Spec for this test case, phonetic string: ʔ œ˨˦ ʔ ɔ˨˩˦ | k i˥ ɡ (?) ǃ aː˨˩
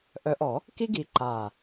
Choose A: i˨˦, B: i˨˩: A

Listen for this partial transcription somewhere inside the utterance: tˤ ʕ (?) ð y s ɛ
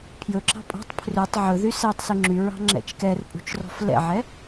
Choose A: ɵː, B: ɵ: B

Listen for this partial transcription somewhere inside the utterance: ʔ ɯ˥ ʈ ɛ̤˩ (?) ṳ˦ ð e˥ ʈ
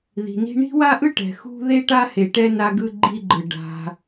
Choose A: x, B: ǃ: A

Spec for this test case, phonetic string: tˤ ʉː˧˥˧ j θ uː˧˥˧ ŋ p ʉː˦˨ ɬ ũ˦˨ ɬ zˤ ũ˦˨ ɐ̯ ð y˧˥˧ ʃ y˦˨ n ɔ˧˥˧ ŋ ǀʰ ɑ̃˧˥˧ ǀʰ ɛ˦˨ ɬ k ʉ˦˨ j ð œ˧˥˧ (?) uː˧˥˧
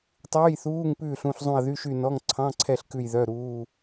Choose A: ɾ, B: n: A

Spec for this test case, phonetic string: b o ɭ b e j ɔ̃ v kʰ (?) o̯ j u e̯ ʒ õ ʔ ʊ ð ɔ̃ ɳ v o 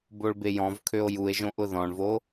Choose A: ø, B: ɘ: A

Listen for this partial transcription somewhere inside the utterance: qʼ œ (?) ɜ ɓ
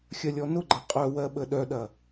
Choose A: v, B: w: B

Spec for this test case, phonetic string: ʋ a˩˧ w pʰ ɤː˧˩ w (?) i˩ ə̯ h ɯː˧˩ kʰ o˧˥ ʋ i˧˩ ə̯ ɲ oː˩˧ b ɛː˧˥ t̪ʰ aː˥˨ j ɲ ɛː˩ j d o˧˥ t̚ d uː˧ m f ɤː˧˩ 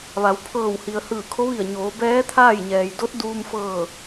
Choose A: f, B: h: B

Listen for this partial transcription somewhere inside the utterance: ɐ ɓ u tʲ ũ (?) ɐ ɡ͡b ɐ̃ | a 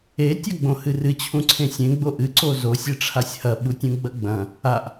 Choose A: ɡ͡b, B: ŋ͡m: A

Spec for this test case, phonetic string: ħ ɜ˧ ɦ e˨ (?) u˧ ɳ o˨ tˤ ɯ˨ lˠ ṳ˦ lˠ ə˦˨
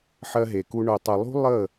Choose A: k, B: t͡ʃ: A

